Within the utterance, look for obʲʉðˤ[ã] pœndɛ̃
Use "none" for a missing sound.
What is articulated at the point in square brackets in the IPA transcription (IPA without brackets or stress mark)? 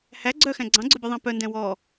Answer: æ̃